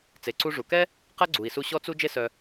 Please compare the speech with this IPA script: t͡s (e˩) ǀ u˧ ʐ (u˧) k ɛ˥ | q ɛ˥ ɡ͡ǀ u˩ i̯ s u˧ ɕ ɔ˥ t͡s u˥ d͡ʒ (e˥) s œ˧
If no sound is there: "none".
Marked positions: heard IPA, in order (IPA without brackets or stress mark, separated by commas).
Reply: e˩, u˩, e˥